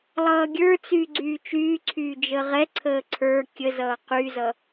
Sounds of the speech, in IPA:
lˠʌːɡʲə˞t͡syː ɡ͡ǀyːt͡ʃyːǀʰyː d͡ʒəʁɛǀʰəː ǀʰə˞ kʲəzʌː qyzʌ

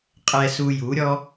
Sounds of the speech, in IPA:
qʼɛ˧su˧ju˨˦ɾʲɔ˦

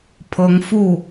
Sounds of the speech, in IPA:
pʰɤ˧˥ŋfu˥˩

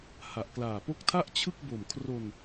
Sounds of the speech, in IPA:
ha˨˩ʔklaː˨˩po˥˩k̚ tʰa˥˩ʔ t͡ɕʰɯ˥˩k̚ bo˨˩mkʰro˧n

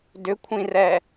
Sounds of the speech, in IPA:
dʏkʷʰĩrɛ

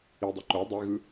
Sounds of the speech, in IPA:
idˤɯ ǃo dˤeɣɯ

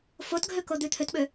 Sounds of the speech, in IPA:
fotɡʱøkod̪ʉ t̪ʰøtɓø

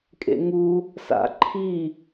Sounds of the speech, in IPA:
kʼḛŋu | sa̰ǃʰi

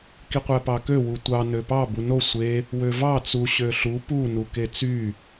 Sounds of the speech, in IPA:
kiqʷæpɑkø wutʷɑ nøpɑ buno sʷe | wøvɑ t͡su ɕøɬu pu nuket͡sy

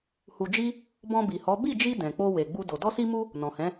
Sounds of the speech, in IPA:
hu˧d͡ʒi˦ | bɔ̃˧bi˨hɔ˨˦ bi˦˨d͡ʒi˧ dɛ̃˨k͡po˧ we˨ ɡ͡bu˧do˨ dɔ˧si˧mu˧ | nɔ̃˨hɛ̃˨˦

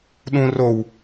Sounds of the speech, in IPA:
ɗũ row

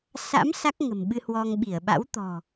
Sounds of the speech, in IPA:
sa̰˧˥m sa˦˥k̚ŋə̤˨˩mɓɨ˧hwɔ˧ŋ ɓi˧˩ə̯ɓa̰˧˥w t̪ɔ̤˨˩

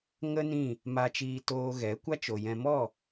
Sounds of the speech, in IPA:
ŋə˦ nĩ˦˨ | ma˧t͡ʃiː˧toː˧ ɣɛ˨˦kʷa˦t͡ʃo˨jɛ̃˧ mɔ˦˨

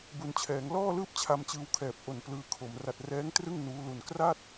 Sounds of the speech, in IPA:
bu˩˦nt͡ɕʰɛː˩˦ŋ lɔː˥˩lɯː˥˩p̚ t͡ɕʰa˧mt͡ɕɯː˧wkʰɛː˨˩p̚ ʔo˨˩n plɯː˧kʰo˩˦m ra˨˩t̚rɛː˦˥ŋtrɯ˥˩ŋ nuː˦˥lu˧n kra˥˩t̚

